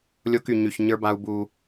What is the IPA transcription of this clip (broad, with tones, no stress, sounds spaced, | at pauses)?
lʲ o˦ k y˨ ɲ y˨ ç ɲ ə˞˦ b a˦ u̯ b u˦